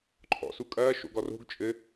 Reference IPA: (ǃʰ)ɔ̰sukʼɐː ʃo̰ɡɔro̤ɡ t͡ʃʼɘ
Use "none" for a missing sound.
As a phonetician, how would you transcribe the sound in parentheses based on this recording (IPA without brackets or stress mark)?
ǃʰ